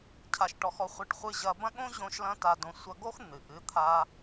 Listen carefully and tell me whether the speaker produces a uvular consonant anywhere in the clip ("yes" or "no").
yes